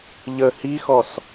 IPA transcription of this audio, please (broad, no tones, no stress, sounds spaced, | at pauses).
ʎ ə h i x ɔ s